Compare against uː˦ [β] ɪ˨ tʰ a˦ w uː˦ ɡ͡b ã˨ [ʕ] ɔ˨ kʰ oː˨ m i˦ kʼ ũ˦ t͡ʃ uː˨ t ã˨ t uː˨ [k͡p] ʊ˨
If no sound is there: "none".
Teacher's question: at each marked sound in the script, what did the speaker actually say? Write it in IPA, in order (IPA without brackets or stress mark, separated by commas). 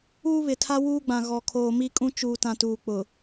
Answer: β, ɣ, k͡p